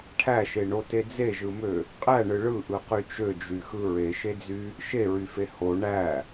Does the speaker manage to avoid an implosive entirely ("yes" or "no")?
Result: yes